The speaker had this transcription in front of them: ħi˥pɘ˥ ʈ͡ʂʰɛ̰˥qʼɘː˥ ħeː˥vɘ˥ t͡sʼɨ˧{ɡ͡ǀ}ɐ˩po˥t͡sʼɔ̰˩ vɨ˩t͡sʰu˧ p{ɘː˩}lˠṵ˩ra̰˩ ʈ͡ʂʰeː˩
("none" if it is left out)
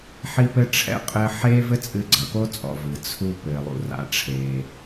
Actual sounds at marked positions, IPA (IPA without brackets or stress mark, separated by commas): ɡ͡ǀ, ɘː˩